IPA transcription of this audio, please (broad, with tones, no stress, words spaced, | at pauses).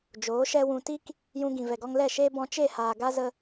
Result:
d͡ʒoː˨˦ʃɛ˦wũ˧ ti˦k | jũ˧ɡĩ˨ vɛ˨ɡɔ˧ŋ lɛ˦˨ʃeː˦ bɔ̃˧ t͡ʃe˦˨haː˨ɡa˦ zə˦